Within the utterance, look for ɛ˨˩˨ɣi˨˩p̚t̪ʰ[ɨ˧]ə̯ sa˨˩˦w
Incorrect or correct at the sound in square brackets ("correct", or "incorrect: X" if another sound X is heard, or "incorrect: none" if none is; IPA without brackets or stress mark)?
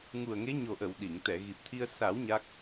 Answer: incorrect: i˧